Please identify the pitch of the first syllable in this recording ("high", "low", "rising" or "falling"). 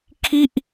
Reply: falling